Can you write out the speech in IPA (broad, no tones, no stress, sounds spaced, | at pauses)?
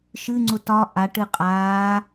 ʃ ɨ ŋ͡ǀ ʊ t ɒ ʔ a ʈ ɨ qʼ aː